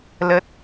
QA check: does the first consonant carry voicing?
yes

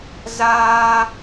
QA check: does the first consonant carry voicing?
yes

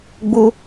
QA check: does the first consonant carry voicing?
yes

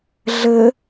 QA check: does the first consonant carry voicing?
yes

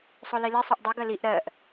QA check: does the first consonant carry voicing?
no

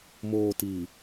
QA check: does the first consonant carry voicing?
yes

